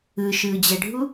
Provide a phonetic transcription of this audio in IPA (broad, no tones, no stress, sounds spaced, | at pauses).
ɯ ʃ ɯː d͡ʑ ɛ ɖʱ u